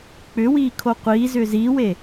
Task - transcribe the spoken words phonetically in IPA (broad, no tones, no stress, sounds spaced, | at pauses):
k͡p ʏ w iː kʰ o qʷ iː z ʏː z iː w e